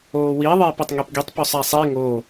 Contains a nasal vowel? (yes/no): no